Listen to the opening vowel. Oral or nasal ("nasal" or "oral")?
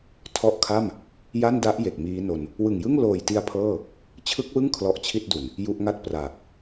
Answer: oral